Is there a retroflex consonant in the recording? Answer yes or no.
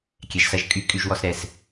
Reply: no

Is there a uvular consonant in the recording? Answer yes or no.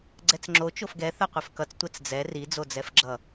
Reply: yes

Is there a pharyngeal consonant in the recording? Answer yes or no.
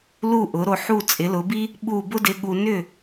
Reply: yes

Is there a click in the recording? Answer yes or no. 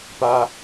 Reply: no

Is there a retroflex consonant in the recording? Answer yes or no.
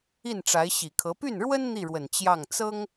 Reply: yes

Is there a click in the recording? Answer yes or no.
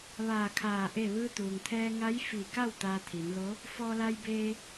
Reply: no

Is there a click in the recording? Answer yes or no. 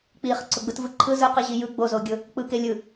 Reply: yes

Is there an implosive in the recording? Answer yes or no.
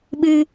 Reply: yes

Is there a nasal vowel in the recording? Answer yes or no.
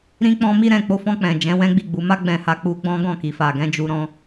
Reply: yes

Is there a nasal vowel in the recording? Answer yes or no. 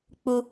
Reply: no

